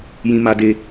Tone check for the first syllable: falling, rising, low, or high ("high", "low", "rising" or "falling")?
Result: high